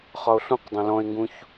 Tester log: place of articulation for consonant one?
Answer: uvular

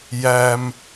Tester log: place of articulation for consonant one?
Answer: palatal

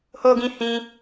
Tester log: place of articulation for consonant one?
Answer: glottal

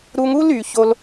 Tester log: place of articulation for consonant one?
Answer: alveolar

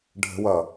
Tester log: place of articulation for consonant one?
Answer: retroflex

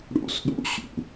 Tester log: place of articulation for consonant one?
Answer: retroflex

